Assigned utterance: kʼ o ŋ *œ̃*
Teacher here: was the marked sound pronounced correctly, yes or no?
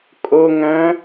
yes